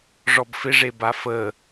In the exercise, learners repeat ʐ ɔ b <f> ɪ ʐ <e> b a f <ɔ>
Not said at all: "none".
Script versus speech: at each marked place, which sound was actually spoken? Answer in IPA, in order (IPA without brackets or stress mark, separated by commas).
f, e, ə